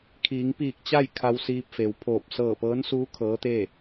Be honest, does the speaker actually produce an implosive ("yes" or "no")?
no